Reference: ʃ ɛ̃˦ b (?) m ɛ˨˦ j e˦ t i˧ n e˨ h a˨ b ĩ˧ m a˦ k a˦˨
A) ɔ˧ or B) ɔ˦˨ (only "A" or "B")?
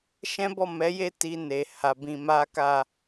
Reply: B